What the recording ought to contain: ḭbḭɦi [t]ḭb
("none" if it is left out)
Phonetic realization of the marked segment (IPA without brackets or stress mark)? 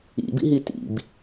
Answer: t